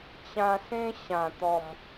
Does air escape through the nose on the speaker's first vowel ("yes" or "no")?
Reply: yes